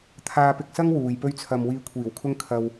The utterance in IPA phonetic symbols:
t̪ʰ aː˧ p ɪ˧ k̚ s ɐ˥ ŋ w uː˨ j p ɵ˥ ɥ t͡sʰ ɐ˧ m w iː˧ kʷʰ iː˨˩ w kʰ ʊ˥ ŋ kʰ ɐ˧ w

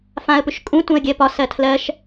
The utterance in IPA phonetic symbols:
f ã ə̯ p ʏ ʃ kʼ ũ t ũ ə̯ ɡʲ ɜ p ɒ s ɜ tʰ l ɜ ʃ

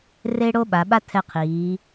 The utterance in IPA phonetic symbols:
r e˥ ɽ o˥ ɓ a˩˧ ɓ a˥ tʰ ɛ˧ qʰ iː˩˧

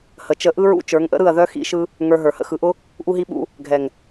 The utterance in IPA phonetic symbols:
h ə˨ t͡ʃ ə˧ ʔ ɯ˦ ɹ ṵ˦ t͡ʃ ə˞˨˦ ŋ ʔ ə̰˦ ɾ ɯ˦˨ ɐ̯ ð œ˦ x ḭ˦ ʃ ɯ˦ | ŋ ə˞˧ ɦ ə˞˨ h ə̰˦ x ɯ˨ ʔ ʊ˦ | ʔ u˦ ɦ i˦ ɓ ṵ˦ | ɡʱ ɛ˨ ŋ

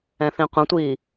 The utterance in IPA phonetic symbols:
ɛ̃ θ ĩ qʷ ə̃ tʷ iː

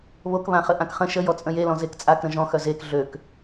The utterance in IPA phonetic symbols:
β o k β ã χ ə ʔ ã k χ ə̃ ʃ ə j ɔ t͡sʼ ə̃ j e l ɔ̃ z e k t͡sʼ a k ɾ ə̃ ʒ ɔ̃ x œ z e k ɮ ø k

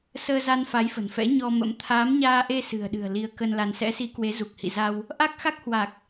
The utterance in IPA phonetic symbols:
s əː˧ z a˧ n f a˨˦ j f ə̤˨˩ n f ɛ̰˧˥ ɲ ɔ˧ m ə̰˧˥ m t̪ʰ aː˨˦ m ɲ aː˧ ʔ e˧ s ɨ̤˨˩ ə̯ ɗ ɨ̤˨˩ ə̯ l i˧ ə̯ k ə˧ n l a˧ n s ɛ̰˧˥ s i˨˦ k w e˨˦ z u˨˩ k̚ h ḭ˧˨ z a˧ w | ʔ a˦˥ k̚ x a˦˥ k̚ h w a˨˩ k̚

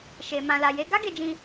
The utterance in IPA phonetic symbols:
ʃ e˨ m ã˨ l a˨ j e˨˦ ɡ a˦ ɡ e˧ d͡ʒ ĩ˧

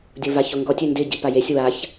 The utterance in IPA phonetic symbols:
dʲ o v a ç o ŋ ɡ ɔ tʲ ø n d ɪ ɟ i p a j e sʲ w a ç

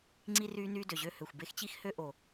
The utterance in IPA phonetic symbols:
ŋ͡ǀ i˧ r yː˧ n yː˧ d ø˩ ʑ ø˧ h ø˩ xʷ b e˧ x t͡ɕ i˧ x h ø˧ ʔ o˩

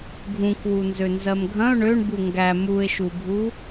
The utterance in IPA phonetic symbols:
ɡʱ ũ k w u n z ø n z ɜ m ɡʱ ɐ̃ ʊ̯ ɳ ø ɳ b u ŋ ɡ æ m u ɪ̯ ʃ u bʱ u

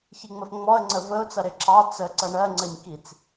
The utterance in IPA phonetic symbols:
ç i ŋ͡m ə f ŋ͡m ɔ ə̯ ŋ͡ǀ ə v ə ʊ̯ t͡s ʌ ɾ ɪ ǁʰ ɑ t͡s ə ǀ ʌ ɳ ɜ ŋ͡ǀ ə ɲ k i t͡s

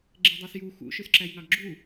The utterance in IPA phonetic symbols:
ɡ͡ǁ e dˤ ɑ s j u x ṵ ʃ ø s ǁ æ j ŋ ɑ ɡ ɡ͡ǁ u

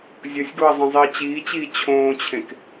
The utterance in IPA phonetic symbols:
zʲ ʌ sʲ ɡ o ɐ̯ zˤ ẽ zˤ i ɐ̯ t͡ɕ iː t͡ɕ iː t͡ɕʰ õː t͡ɕʰ ẽ k

